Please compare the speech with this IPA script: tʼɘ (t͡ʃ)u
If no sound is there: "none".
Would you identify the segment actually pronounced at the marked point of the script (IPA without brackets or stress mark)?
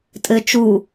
t͡ʃ